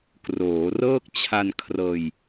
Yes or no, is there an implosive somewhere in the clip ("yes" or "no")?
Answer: no